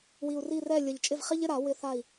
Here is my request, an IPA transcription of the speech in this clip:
w i˨˩ u̯ r i˥˨ r ɛ˥˨ lʲ ə˨˩ ʎ t͡ʃʼ ɪ˥˨ v χ i˥ ʎ ɪ˧˥˧ ɾ a˨˩˦ w ɪ˧˥˧ θ a˥˨ i̯

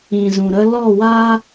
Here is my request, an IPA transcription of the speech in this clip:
ĩ˨ z ũ˨ ɾ ə˧ l ɔ˦˨ w aː˦

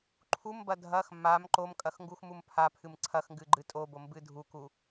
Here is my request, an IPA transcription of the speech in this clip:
ǃʰ u m b ɐ dʱ ɐ x m a m ǃ o m kʼ ɐ x ŋ ɡ u x m u m pʰ a pʰ ɨ m ǀʰ ɐ x ŋ ɡ ɨ ɡ͡ǃ ɨ tʼ o b o m b ɨ dʱ u k u

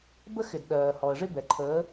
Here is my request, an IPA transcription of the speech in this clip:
b ə˦ x ɪ˨ d ɗ ɜː˨ h ɔ˨ ə̯ ʐ ɪ˦ b ɛ˨ ǃʰ əː˨˦

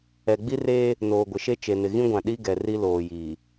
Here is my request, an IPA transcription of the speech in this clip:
ɛ˨ ɡ͡b i˦ r eː˦ | n oː˨ ɡʷ ɪ˨ ʃ e˦ t͡ʃ e˨ n ɪ˨ ɣ ĩ˦ ɡʷ ã˨ ɗ i˦ ɡ ɛ˨ r i˦ l oː˨ j iː˨

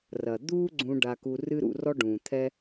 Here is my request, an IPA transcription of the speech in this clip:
r ɐ˩ d̪ uː˥ ɡ͡ǀ ũ˧ ɖ a˧ k u˧ r ɨ˥ ɾ ṵ˧ r ɔ˥ ɖ ũː˩ t̪ʰ ɛ˥

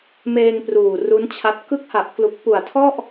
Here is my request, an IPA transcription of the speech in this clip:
m eː˧ ŋ p r uː˨˩ r u˦˥ n t͡ɕʰ a˦˥ t̚ k ɯ˦˥ k̚ h a˨˩ ʔ k l u˨˩ k̚ p u˨˩ a̯ tʰ ɔ˥˩ ʔ

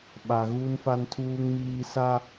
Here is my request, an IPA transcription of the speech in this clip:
ɓ a˨ ɣ u˦ n f a˦ n tʰ uː˦ ŋ m iː˦ s a˦

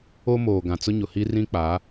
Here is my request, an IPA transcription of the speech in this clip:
o˦ m oː˨ ɡ ã˨ t͡s ʊ˦ ɲ ʊ˨ h i˦ r ĩ˦ k͡p a˨˦

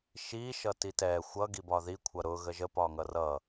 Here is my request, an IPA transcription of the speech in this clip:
ʃ i ʃ ʌ t i t ɛ xʷ ʌ ɡ i b ɒ ð i kʷʰ ʌ ɾ ʊ ɣ ə ʒ ə p ɒ ŋ ʌ r ʌ

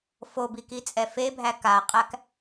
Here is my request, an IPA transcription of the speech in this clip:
f o b i k i t͡sʼ ɛ f e bʱ æ k a qʼ æ k

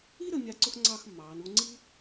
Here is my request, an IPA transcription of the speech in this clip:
i˥ ɾ ə˧ mʲ a˧ ǀ ʊ˥ x ŋ͡ǀ ɑː˥˧ x mː ɑː˩˧ n u˧ ŋ͡ǀ i˥

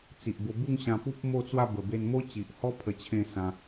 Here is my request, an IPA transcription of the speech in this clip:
t͡s i˨ ʔ b o˧ b u˥˧ ŋ ɕ ã˧ p u˦ p̚ m o˥˧ t͡s w a˥˧ b ə˨˩ b e˧ n m o˦ t͡ɕ i˨ ʔ h ɔ˦ pʰ ə˧ t͡ɕʰ ẽ˥˧ s ã˧

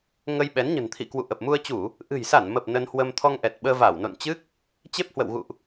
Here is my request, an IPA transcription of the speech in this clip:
ŋ ə˧ j ɓ ɛ˨˦ n ɲ ə̤˨˩ n t̪ʰ ḭ˧˨ k w ṵ˧˨ ʔ ə˨˩ p̚ m u˧ ə̯ t͡ɕ u˧˩˨ | ʔ ɨ̤˨˩ j s a˧˩ n m ə˨˩ p̚ n ə˧ n h w ə˧ m t̪ʰ ɔ˧ ŋ ʔ ɛ˨˩ t̚ ɓ əː˧ v a˧˩ w n o̰˧˨ n t͡ɕ ɨ˦˥ k̚ | t͡ɕ e˦˥ p̚ h w ə̰˧˨ w ɣ ṵ˧˨ ʔ

